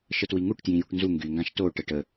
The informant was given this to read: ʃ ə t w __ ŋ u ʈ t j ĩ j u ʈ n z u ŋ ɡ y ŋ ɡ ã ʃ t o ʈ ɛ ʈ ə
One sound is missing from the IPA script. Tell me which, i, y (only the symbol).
i